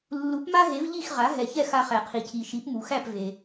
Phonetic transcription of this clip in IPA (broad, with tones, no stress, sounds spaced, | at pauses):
lː u˩˥ p m a˥ ɦ e˩˥ v ʎ i˥˩ x ʁ a˩˥ ɦ ɛ˩ ç ɛ˥˩ x a˧ χ æ˩ qʰ i˩ cʰ i˩ ʃ i˩˥ p m u˩ x æ˥˩ p v e˩